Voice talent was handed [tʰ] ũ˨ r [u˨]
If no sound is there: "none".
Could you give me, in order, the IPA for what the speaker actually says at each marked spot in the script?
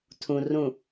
tʰ, ũ˨

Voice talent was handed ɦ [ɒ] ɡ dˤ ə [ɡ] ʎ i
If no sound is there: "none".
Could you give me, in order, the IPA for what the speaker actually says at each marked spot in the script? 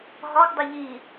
ɒ, none

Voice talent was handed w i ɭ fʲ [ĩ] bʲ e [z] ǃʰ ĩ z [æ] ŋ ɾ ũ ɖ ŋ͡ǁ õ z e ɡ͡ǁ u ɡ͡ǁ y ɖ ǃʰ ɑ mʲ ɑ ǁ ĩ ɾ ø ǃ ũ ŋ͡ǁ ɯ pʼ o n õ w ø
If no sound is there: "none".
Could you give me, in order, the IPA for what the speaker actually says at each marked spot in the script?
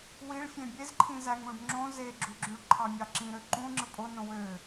ẽ, z, æ

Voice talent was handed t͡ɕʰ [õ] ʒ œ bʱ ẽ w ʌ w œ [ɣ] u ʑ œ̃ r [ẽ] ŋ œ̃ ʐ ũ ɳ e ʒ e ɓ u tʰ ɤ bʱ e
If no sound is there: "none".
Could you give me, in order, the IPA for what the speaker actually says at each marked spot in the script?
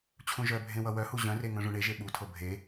ũ, h, e

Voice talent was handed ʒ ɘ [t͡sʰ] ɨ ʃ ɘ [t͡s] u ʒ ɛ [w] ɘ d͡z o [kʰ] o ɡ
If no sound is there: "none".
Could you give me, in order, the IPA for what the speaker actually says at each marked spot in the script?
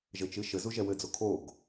t͡ʃ, z, w, kʰ

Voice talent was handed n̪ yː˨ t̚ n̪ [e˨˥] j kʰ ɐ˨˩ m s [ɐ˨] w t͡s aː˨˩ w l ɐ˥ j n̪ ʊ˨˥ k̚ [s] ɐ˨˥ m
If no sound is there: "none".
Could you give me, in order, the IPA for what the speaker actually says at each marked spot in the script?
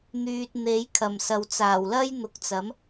e˨˥, ɐ˨, t͡s

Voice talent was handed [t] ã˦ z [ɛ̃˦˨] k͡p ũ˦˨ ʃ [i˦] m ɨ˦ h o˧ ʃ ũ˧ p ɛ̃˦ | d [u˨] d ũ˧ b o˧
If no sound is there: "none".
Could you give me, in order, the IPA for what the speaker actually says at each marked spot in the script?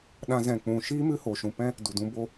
ɗ, ɛ̃˦˨, iː˦, u˨

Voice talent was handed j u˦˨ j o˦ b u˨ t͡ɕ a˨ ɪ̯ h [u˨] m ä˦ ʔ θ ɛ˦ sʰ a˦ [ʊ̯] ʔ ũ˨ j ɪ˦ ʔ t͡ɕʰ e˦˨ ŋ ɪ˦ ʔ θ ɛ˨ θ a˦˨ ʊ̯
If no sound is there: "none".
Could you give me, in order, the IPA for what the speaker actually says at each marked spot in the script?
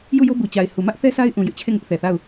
u˨, ɪ̯

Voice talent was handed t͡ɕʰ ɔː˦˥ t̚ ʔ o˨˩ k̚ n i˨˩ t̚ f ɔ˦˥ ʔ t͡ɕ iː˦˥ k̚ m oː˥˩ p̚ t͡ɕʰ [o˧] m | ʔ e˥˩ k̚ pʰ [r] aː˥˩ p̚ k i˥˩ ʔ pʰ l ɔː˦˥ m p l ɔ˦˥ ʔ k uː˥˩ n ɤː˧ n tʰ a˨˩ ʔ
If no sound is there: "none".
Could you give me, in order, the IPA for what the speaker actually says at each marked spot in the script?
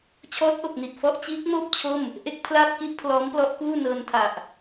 o˥˩, l

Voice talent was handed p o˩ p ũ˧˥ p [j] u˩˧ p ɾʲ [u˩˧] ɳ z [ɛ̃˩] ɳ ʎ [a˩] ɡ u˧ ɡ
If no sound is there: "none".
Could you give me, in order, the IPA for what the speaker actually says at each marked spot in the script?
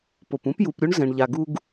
j, u˧˥, ɛ̃˩, a˩

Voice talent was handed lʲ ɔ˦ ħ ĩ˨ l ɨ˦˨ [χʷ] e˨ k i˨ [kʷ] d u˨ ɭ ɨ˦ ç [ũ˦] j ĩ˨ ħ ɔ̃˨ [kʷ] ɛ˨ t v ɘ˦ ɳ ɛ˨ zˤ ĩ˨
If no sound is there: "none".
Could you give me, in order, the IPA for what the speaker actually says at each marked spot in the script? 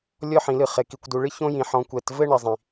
χ, kʷ, õ˦, kʷ

